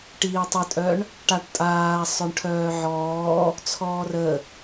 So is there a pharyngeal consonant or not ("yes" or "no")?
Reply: yes